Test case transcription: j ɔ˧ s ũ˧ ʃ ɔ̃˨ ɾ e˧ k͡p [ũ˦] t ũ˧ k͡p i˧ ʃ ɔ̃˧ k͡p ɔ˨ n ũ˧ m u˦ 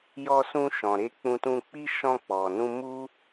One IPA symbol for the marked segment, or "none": ũ˧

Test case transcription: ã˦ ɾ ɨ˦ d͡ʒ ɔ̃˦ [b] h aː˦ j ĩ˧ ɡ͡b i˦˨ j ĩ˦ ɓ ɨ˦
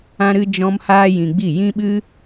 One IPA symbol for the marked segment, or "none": m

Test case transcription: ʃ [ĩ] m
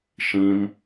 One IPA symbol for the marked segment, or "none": ĩ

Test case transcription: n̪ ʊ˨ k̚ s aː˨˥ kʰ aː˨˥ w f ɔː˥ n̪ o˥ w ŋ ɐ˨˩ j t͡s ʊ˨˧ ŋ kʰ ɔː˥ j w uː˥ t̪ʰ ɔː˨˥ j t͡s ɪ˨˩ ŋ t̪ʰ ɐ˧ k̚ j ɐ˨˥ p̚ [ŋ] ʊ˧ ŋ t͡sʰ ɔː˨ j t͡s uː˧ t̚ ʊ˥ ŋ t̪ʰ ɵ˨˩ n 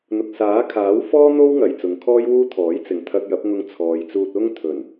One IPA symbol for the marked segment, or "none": ŋ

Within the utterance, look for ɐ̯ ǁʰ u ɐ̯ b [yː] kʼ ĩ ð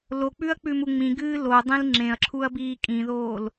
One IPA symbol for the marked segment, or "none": iː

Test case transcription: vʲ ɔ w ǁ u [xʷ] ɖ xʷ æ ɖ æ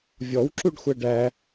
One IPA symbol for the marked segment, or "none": none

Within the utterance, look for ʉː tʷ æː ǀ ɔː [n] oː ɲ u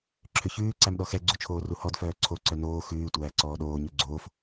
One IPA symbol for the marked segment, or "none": ɗ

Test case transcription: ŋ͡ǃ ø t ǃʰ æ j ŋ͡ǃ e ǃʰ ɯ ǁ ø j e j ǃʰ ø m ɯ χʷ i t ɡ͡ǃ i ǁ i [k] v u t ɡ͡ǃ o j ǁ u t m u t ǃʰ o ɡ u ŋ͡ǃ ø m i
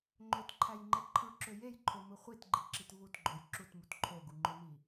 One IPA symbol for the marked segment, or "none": t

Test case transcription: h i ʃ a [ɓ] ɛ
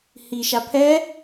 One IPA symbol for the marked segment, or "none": pʰ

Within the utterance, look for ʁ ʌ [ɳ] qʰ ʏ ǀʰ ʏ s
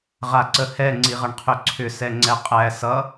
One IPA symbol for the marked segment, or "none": ɳ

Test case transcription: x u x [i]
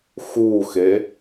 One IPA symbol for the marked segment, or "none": e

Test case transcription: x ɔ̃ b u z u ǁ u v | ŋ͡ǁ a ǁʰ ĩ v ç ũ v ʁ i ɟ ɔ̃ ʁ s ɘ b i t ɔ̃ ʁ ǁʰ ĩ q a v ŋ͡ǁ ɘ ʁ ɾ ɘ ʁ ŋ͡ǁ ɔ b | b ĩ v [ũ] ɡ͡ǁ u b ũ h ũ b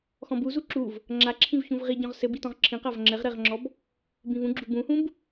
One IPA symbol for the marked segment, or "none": ũ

